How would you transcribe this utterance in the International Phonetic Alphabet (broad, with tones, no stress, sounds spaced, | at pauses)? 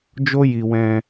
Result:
d͡ʒ o˦ j i˧ w ɛ̃˧